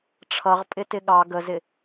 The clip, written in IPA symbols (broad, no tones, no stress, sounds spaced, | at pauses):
ʈ͡ʂʰ ʌ ʁ pʼ ɪ t ɪ ɠ ɑ ɡ ə z ɪ